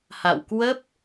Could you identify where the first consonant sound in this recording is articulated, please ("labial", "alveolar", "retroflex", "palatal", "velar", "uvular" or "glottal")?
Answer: glottal